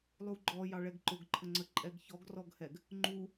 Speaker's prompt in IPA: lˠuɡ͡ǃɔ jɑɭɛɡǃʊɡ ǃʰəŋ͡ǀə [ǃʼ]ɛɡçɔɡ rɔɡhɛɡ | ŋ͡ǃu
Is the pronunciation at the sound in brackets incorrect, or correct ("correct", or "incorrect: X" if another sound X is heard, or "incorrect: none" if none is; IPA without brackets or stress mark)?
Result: correct